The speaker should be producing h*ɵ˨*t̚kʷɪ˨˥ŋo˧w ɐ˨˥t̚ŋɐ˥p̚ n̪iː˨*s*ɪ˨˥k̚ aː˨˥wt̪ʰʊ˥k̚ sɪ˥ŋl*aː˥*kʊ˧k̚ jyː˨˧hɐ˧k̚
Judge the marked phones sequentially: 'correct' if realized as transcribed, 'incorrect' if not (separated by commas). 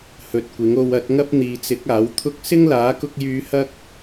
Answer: correct, incorrect, incorrect